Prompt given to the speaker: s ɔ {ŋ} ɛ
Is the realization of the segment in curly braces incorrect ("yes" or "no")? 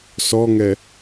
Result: no